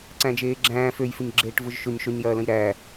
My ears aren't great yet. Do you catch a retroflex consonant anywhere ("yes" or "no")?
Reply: yes